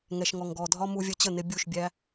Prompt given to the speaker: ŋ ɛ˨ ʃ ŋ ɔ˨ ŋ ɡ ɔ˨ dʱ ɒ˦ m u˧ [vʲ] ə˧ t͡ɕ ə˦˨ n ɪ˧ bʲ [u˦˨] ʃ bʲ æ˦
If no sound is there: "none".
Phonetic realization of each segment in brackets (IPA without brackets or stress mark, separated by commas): vʲ, u˦˨